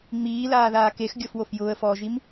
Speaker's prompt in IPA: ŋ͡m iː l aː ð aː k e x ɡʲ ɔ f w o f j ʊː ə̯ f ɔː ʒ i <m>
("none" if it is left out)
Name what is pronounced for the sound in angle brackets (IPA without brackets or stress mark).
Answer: m